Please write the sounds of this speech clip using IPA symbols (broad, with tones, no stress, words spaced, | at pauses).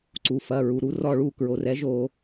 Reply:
ǀu˩fɐ˩˧˩ɹu˩ ɾu˩˥rɔ˦˨ɭu˦˨ kɹo˩rɛ˩˥ʒo˧˩˧